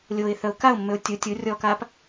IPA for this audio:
lʲ o ɪ̯ θ œ ʊ̯ k a ʊ̯ mː ø ʊ̯ tʲ u tʲ u rʲ ɔ k a p

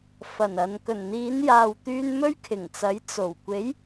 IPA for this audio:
f ɐ˨˩ n ɐ˨ n k ɵ˨˩ n n̪ iː˨˧ n j aː˨ w t̪ yː˧ n m ɵ˥ ɥ kʰ ɪ˨˩ ŋ t͡s ɐ˨˥ j t͡s o˨˩ w kʷ e˨˥ j

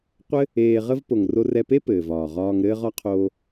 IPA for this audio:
qʷ ɘ˦ | eː˧ ʁ ə˦ v p o˨ ŋ r o˧ r ɛ˧ p e˦ p ɘː˨ v ɒː˨ ʁ ɒː˧ ŋ ɾ ɘː˧ ʁ ɒ˧ qʰ oː˧

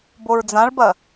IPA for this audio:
b o ɹ d͡z ã ɭ b ɐ

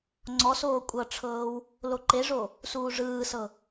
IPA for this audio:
ŋ͡ǀ ɔ s oː kʷʼ ɤ ʈ͡ʂʰ ɤː w | l o ǃ e ʐ o | s uː ʐ ɯː s ɤ

